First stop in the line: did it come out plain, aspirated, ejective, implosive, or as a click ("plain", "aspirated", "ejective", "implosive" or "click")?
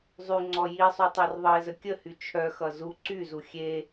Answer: click